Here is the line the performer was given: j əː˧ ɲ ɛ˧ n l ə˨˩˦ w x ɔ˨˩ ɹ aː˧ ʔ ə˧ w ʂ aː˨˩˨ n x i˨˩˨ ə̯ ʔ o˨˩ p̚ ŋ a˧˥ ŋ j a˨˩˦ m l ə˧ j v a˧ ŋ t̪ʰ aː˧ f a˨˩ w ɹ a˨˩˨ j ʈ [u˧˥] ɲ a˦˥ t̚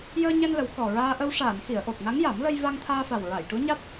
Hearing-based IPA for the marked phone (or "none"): u˧˥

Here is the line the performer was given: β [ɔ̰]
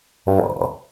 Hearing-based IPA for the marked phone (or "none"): ɔ̰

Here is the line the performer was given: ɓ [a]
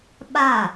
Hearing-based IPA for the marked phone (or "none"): a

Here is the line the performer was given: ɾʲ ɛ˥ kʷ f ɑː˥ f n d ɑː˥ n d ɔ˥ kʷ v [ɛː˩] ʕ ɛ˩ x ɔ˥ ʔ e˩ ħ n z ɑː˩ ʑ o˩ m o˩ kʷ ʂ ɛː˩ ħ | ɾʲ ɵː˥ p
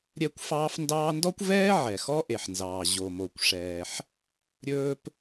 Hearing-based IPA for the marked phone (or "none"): ɛː˥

